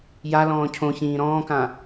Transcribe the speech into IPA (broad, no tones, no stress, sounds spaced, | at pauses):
j a l ɔ̃ː cʰ õ ç ĩː ɾ ɔ̃ː k ã